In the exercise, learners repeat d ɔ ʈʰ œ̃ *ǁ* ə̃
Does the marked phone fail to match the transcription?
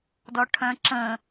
no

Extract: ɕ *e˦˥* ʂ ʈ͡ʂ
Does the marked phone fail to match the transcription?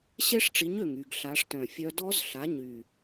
no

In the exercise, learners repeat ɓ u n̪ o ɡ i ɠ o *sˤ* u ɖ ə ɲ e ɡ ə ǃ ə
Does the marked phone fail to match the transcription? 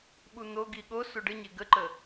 yes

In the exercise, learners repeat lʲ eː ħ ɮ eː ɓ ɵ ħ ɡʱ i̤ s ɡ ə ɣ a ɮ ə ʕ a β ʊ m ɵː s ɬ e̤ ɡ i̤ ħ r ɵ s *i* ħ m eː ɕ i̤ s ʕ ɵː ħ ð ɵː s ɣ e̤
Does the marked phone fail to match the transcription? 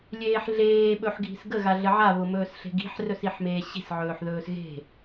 no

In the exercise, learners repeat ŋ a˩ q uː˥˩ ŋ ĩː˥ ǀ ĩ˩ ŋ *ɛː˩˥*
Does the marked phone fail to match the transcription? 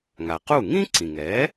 no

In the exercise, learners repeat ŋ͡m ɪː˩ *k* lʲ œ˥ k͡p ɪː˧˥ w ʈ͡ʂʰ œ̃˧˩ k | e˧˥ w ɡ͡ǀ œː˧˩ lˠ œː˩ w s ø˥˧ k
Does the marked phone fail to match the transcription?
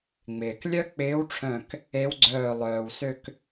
no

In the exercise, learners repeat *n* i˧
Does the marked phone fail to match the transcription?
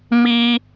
yes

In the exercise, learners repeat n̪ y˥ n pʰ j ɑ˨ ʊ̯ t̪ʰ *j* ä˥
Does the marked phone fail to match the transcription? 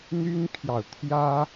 no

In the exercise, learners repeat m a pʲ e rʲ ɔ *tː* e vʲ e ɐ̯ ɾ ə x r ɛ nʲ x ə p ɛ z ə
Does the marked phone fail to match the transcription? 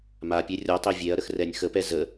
yes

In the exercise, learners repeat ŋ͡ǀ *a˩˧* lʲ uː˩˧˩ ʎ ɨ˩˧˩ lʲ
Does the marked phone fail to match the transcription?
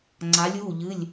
no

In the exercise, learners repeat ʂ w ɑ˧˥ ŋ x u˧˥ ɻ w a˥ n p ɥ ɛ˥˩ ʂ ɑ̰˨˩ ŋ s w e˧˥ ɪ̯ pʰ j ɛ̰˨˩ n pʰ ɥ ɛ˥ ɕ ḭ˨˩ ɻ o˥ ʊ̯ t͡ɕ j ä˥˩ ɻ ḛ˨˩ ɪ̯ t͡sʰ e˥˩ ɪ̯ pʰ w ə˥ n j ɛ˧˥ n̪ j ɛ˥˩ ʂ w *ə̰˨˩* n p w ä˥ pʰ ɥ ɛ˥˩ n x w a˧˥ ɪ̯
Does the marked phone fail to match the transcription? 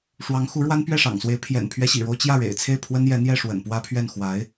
no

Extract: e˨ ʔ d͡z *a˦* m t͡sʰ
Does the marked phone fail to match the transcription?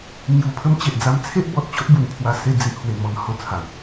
no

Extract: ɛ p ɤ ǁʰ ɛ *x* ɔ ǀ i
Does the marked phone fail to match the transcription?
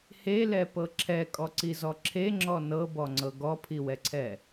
yes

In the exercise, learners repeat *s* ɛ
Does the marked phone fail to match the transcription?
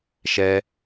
yes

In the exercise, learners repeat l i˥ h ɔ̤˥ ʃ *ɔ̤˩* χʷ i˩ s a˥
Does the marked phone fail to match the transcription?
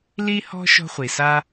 yes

